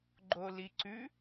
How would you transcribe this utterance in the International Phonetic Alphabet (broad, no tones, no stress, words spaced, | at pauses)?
ɡ͡ǃoliǀʉ